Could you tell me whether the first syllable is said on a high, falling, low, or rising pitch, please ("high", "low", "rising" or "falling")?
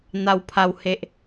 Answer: high